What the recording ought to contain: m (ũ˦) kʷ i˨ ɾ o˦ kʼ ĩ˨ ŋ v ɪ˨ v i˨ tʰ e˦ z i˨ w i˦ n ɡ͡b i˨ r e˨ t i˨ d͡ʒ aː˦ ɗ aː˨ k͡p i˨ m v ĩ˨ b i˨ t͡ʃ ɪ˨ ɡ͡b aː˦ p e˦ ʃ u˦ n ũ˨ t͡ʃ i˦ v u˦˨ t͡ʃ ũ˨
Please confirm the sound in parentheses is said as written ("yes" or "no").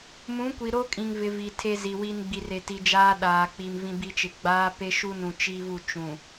no